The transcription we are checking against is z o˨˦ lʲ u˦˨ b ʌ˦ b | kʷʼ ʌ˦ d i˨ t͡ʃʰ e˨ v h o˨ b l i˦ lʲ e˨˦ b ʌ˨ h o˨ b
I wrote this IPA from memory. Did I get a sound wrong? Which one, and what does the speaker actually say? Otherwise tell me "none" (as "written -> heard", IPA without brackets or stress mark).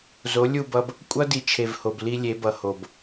none